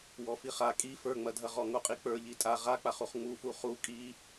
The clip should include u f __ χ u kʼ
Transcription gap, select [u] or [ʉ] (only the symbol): u